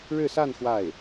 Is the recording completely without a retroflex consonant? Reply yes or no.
no